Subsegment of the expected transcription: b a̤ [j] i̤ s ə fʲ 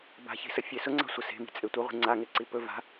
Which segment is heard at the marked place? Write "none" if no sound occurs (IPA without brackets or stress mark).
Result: ç